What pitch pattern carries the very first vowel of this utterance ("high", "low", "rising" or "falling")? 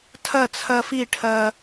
falling